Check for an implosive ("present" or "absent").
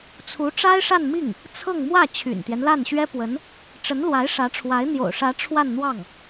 absent